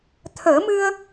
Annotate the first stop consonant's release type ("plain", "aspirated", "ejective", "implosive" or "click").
aspirated